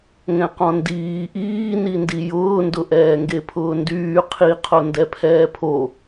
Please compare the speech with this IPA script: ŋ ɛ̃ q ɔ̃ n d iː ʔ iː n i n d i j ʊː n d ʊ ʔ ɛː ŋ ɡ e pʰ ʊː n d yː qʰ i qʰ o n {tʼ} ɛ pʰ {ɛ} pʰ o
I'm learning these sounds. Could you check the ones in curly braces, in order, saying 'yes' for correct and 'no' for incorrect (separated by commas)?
no, no